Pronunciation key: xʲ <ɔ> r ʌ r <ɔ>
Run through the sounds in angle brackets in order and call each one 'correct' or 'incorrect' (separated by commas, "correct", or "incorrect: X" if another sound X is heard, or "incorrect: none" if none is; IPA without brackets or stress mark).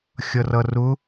incorrect: ʌ, incorrect: ʊ